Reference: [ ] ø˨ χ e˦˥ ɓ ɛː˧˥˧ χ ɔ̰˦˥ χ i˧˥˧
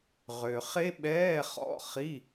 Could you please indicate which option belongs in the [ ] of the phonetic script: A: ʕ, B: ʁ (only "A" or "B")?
B